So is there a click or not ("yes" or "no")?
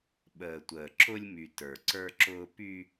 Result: yes